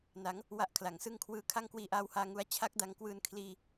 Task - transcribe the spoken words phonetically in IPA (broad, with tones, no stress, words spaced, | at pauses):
na˩˦ŋ | wa˥˩ʔkʰla˩˦ŋsɯ˥˩ŋ kʰwɯː˧ kʰa˥˩ŋkwiː˧ ʔaː˧whaː˧ ŋu˦˥a̯ t͡ɕʰa˦˥k̚da˧ŋkwɯː˧n kʰliː˧